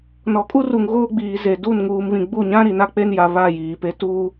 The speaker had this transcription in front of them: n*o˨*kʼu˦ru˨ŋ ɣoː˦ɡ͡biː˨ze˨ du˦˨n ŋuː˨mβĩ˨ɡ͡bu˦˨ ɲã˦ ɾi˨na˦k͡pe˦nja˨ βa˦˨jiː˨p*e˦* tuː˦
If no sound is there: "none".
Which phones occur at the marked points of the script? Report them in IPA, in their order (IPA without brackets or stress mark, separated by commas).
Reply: ɔ˨, e˦